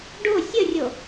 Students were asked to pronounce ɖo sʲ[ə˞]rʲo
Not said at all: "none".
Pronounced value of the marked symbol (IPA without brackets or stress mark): ə